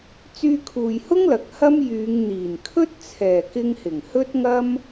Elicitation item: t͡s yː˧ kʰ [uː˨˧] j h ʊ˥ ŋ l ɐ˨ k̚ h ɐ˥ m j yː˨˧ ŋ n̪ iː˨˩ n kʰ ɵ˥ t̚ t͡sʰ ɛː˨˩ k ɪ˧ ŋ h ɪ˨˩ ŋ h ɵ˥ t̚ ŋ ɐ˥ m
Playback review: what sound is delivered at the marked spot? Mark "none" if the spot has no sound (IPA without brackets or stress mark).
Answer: uː˨